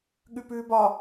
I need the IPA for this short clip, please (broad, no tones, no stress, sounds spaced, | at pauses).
ɠ ʉ p ʉː b ɒ